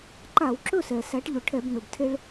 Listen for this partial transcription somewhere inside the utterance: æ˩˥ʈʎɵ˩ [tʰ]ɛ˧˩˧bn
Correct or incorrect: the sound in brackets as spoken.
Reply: incorrect: ʈʰ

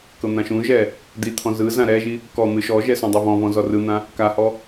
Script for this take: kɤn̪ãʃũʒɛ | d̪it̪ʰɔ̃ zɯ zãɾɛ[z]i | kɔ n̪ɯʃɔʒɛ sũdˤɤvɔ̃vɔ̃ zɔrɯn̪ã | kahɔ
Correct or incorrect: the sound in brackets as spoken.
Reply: incorrect: ʒ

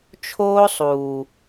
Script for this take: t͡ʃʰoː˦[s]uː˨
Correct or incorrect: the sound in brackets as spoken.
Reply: incorrect: sˤ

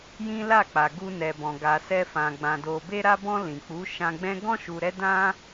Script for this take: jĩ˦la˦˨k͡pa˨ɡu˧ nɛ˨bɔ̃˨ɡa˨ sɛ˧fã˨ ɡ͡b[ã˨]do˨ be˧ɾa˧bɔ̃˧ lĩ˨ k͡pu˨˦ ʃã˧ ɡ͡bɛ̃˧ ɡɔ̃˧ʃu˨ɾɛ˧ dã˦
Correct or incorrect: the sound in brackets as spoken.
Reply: correct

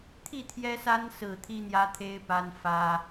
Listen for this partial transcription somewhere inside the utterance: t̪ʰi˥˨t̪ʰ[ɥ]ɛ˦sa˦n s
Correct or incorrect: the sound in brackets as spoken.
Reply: incorrect: j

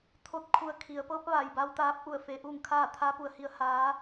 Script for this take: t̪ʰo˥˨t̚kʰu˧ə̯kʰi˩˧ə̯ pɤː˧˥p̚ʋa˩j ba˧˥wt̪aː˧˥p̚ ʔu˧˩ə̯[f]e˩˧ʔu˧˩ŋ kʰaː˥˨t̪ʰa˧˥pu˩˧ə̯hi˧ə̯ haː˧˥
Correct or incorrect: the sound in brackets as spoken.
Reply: correct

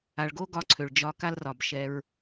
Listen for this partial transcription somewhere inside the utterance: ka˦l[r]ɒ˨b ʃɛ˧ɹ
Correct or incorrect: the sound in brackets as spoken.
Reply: correct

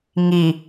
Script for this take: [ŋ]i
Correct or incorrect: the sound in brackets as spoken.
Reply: correct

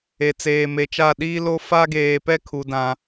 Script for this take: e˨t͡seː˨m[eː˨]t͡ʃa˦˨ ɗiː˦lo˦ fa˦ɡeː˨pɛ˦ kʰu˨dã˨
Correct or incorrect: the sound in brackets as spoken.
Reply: incorrect: e˨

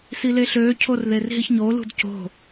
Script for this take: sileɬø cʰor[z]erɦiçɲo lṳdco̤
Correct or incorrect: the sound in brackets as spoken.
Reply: incorrect: ð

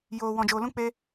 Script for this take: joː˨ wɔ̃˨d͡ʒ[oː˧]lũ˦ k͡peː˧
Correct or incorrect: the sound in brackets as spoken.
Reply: incorrect: oː˨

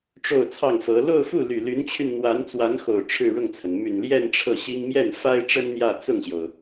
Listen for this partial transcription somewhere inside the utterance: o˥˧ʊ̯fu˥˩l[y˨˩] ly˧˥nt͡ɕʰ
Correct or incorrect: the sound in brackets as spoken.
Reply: correct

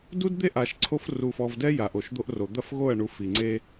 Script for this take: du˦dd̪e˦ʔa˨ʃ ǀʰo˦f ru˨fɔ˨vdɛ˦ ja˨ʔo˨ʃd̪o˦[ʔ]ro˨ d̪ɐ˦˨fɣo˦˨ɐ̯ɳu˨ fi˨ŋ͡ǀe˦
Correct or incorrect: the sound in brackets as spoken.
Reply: correct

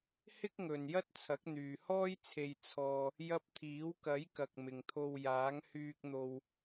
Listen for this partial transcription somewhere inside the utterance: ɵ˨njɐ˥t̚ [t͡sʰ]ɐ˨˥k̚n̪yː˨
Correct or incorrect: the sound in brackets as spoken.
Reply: correct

